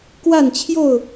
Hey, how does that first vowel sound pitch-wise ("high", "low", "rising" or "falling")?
falling